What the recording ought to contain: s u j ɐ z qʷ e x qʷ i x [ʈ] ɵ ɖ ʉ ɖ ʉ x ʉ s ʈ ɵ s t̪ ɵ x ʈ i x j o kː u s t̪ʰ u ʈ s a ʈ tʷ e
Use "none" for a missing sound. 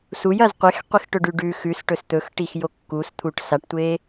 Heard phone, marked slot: ʈ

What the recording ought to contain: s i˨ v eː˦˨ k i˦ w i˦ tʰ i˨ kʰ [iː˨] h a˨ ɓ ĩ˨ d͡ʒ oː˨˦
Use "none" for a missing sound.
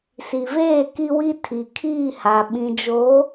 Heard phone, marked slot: iː˦˨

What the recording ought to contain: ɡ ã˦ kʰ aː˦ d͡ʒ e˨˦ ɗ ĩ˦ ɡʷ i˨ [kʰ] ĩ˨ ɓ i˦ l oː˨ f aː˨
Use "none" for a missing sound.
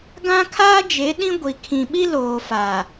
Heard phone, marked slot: kʰ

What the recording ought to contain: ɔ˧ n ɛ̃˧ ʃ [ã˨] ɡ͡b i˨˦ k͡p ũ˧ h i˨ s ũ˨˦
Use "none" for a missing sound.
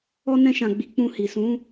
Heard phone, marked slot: ã˨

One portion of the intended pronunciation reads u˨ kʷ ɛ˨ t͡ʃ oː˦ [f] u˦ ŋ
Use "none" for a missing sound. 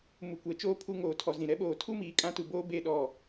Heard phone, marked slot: pʰ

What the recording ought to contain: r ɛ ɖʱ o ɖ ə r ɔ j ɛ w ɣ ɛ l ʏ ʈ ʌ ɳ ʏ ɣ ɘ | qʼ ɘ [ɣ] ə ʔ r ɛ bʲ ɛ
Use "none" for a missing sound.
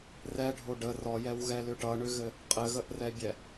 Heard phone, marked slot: ɣ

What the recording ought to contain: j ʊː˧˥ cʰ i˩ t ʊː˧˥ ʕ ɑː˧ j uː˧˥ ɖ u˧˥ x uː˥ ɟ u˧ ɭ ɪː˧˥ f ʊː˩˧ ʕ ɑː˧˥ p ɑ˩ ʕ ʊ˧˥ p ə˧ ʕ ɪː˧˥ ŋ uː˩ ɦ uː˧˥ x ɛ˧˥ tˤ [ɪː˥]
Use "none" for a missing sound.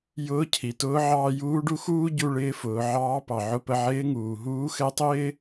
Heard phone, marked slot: ɪː˥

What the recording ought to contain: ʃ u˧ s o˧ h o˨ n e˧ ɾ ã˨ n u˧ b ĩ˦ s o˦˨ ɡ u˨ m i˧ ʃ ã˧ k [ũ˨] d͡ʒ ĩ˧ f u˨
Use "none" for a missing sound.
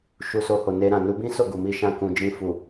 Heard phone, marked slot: ũ˨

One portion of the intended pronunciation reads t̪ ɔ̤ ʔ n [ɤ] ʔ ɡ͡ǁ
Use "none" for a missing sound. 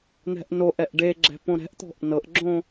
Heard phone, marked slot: ɤ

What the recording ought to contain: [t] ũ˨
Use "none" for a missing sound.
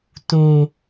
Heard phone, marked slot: t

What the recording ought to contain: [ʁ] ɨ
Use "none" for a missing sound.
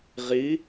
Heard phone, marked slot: ʁ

